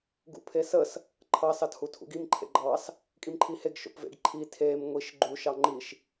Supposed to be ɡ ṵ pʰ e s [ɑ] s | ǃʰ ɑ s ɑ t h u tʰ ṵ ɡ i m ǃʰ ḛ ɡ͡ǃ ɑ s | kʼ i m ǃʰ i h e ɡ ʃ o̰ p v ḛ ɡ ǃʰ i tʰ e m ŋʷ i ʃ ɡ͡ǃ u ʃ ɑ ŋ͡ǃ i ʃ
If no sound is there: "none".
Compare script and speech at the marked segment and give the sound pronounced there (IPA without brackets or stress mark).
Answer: ə